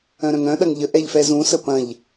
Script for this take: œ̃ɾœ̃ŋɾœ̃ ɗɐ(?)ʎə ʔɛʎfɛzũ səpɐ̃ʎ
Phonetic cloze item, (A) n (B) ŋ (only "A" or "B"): B